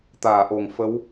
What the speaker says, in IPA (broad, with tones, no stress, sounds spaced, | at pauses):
t̪ aː˨˩˨ ʔ o˨˩ ŋ f ə˧˥ w